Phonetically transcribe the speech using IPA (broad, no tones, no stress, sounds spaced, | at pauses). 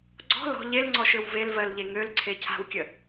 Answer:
ɡ͡ǀ ɔ̤ l ɔ̤ ʎ e l ŋ͡ǀ ɔ ʃ ø w v e l v ɜ l ʎ e ŋ ø l ǀʰ e cʰ a̤ w kʲ ə